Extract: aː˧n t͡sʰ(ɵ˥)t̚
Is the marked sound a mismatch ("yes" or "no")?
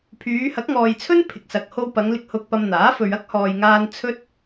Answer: no